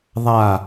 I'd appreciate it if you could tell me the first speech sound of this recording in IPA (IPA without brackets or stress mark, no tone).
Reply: ðˤ